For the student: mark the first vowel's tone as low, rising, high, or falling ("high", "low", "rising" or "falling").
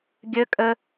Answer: high